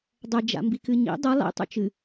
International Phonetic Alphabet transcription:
dˤɐ d͡ʒa̰mbikɨɲḭ dˤɐ lˠḭ tˤṵt͡ʃɨ

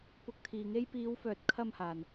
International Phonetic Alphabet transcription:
pʊ˧k̚t̪ʰiː˨ŋe˥j piː˨˧wfœː˨t̚kʰɐ˧m haː˨n

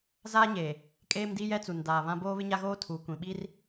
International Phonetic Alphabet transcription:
zaː˦ɲeː˨ | kʼeː˦mdi˦ jɛ˦t͡su˨ndaː˨βã˦ boː˦βɪ˦ɲa˦ɣoː˦ tʰu˨ kʷĩ˨ɓi˦r

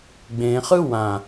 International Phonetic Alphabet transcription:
ɡ͡bẽχɯ wã

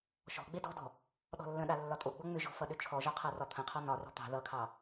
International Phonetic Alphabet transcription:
ʃɔ̤ ɡ͡bedɔ̤dɔ̤ | ɗɔ̤lːə̃ɗa lːɒtʼoɡ͡bo ŋ͡mʏʒɔ̤ fʌɗʏt͡ʃʰɔʒɒ qʰarɒt̪ʰə̃qʰɒ nɒrɔ̤ t̪ɑ̤ ðʌkʰɑ

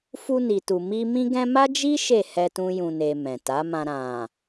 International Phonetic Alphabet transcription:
fu˧ni˨tu˨mi˧ mĩ˧ɡɛ̃˧ma˦d͡ʒi˦ ʃe˦˨hɛ˧tũ˧ jũ˨ne˨ mɛ̃˨ta˨˦mã˧ ɾã˨

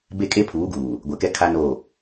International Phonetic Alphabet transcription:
be˦˨kʼe˦pʰuː˨˦ɡuː˨ | ɡʷɛ˨kɛ˦ kʰa˦no˦˨

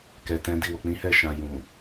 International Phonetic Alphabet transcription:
kɛ˨ tɛ̃˨˦di˦˨wo˨ k͡pĩ˨˦hɛ˦˨ʃã˨ jũ˨

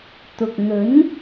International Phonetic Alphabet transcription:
t̪ʊ˨k̚n̪ɵ˨˥n

